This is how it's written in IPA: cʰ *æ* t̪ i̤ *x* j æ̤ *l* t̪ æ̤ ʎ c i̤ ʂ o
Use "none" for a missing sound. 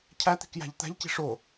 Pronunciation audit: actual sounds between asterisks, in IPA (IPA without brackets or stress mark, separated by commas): æ, k, ʎ